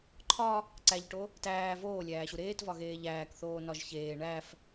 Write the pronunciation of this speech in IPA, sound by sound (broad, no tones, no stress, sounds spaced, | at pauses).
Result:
ǃʰ ɒ | ǀ æ ʎ ʈ o | t æː v oː lʲ æː ɕ u ɾ eː t v ɒ ɣ eː ʎ æː k θ oː n ɒ ʒ ç eː ɳ æ f